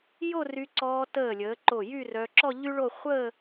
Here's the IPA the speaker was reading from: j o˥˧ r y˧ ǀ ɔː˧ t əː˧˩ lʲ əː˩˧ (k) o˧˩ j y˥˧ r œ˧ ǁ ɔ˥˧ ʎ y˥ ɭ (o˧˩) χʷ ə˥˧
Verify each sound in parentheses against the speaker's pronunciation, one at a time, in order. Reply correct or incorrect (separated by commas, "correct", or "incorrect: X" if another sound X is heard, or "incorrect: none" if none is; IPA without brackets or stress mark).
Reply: incorrect: ǃ, incorrect: o˥˧